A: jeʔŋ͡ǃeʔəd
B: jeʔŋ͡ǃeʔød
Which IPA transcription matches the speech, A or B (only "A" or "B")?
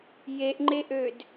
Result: B